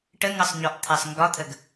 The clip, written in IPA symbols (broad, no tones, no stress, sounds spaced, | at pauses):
ʈ ə ŋ ʌ sˤ ɲ ɔ ʔ t̪ʰ ɛ sˤ ŋ ɡ ɒ t̪ʰ ə ɡ